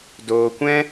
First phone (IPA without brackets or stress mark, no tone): d